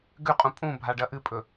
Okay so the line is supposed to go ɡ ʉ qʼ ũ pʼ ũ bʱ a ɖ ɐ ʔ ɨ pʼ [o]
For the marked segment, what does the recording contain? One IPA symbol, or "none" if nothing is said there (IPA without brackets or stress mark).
ɵ